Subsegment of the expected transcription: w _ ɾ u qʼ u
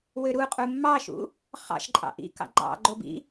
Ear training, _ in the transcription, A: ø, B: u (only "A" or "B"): A